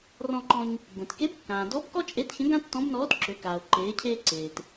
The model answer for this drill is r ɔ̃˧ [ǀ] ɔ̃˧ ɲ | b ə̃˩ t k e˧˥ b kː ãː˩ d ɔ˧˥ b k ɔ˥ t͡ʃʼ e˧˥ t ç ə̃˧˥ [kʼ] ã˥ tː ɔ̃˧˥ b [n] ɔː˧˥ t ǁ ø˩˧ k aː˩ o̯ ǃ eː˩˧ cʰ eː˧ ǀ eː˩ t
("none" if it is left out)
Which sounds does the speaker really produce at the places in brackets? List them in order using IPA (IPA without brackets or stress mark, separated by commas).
ǃ, ɡ, n